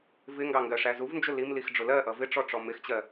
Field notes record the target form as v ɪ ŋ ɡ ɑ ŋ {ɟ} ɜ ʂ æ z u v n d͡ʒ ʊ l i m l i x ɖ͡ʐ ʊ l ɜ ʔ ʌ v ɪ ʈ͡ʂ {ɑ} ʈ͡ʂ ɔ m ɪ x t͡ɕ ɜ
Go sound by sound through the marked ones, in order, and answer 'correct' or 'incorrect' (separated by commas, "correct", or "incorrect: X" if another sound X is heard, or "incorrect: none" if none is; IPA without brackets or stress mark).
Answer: incorrect: ɡ, incorrect: ɔ